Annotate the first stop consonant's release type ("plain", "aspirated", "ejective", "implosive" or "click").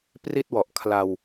plain